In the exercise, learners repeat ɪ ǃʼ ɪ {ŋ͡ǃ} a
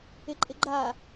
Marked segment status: incorrect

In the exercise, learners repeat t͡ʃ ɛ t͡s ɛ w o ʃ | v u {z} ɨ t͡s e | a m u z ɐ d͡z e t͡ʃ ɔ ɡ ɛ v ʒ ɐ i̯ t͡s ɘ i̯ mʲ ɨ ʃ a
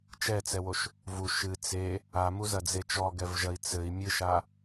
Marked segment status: incorrect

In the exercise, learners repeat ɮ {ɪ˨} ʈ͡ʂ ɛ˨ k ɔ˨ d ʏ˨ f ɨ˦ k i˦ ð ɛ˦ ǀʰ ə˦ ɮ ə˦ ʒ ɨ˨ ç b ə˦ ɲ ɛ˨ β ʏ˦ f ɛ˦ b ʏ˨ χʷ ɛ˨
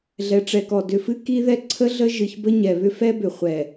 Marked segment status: incorrect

